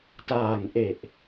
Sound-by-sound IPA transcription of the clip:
taː˨˩ŋʔe˨˩ʔ

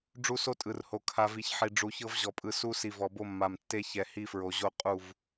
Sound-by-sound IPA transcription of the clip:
ɖ͡ʐu˦so˦tʼɯ˨rho˨ kʰa˨vi˨ç ħi˨ ɖ͡ʐu˨çɤ˦v ʑɔ˨pʼɯ˨ su˦ si˨vɔ˨bo˦mːa˨m tːe˦çɛ˨ hi˦fɹo˨ʑo˦ qʼu˦˨v

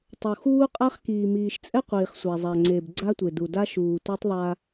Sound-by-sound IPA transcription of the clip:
tˤo˨ xuː˦qʼa˦χ kiː˨miː˨ʃt͡sʼɛ˦qʷiː˨χ sʷa˨zˤa˨ŋ͡ǀeː˨b ɡ͡ǀa˦tʷe˨du˨da˦ ʃuː˨tʷe˦tˤðˤa˦

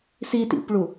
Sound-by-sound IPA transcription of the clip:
sitḭpɭu

